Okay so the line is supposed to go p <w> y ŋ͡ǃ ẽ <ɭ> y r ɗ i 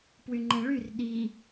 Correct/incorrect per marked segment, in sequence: correct, correct

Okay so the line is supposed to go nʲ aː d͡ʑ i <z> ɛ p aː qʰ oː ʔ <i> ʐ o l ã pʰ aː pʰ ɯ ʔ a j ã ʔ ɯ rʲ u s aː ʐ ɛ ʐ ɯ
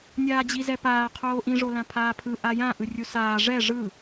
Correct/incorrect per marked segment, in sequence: correct, incorrect

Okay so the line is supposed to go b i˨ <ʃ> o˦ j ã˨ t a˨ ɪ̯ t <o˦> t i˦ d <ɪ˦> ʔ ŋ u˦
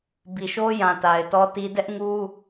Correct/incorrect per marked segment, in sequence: correct, incorrect, incorrect

